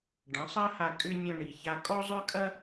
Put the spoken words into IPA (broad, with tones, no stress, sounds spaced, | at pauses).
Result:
ɖ ɐ̃˩˥ sˤ ɐ˥ h a˧ kʼ ʏ˥ nʲ œ̃˧ ɳ i˩ ç a˧ kʼ ɔ˥ zˤ œ˥ kʼ ɐ˥